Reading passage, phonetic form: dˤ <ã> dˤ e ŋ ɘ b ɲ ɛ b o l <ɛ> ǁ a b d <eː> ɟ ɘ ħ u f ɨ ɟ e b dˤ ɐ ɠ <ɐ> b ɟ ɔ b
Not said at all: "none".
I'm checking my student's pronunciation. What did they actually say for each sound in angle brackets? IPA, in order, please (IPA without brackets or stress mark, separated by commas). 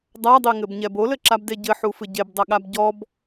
a, ɘ, e, a